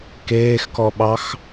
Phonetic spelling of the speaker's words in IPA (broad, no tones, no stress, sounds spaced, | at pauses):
k eː x k ɔ ɓ ɑ x